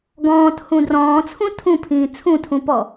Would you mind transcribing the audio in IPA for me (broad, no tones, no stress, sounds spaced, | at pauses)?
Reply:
ɡ ɔ̃ː t h ũ d r ɔ̃ː t͡sʰ ũ tʰ ũ pʰ ĩː t͡sʰ ũ tʰ ũ p ɔ